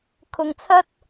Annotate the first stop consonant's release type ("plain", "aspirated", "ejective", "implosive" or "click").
aspirated